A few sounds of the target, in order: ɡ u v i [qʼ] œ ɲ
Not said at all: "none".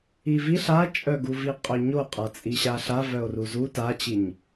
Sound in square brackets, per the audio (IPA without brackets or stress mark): qʼ